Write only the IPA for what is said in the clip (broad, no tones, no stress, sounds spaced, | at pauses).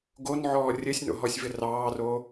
ɡ o n ʕ ɔː rʲ ɘ sʲ n o̰ ɦ ɔ sʲ v ɪ r ɑː r o